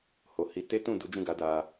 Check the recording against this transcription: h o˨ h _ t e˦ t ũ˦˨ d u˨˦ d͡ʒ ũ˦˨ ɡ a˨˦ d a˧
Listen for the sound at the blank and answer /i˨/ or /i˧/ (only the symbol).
i˧